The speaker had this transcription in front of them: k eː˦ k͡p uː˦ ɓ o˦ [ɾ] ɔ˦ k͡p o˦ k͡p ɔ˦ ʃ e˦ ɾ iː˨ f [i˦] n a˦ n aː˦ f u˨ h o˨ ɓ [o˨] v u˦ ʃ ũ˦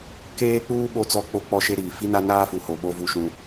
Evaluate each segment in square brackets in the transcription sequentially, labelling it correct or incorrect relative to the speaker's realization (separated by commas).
incorrect, correct, incorrect